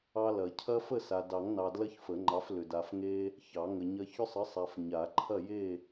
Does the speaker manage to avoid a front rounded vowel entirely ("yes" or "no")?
no